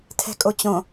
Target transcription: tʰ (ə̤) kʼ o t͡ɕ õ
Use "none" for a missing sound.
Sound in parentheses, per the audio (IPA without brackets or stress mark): ɛ̤